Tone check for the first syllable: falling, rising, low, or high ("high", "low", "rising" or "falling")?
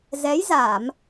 rising